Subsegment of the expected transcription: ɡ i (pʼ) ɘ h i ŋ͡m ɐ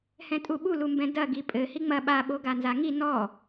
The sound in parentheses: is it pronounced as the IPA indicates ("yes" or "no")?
yes